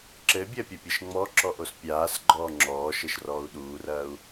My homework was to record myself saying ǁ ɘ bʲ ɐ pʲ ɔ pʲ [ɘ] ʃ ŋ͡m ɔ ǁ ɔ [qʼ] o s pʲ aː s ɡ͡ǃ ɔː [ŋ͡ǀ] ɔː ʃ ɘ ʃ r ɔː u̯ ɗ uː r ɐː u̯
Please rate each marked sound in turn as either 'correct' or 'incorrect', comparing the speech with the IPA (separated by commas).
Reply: correct, incorrect, incorrect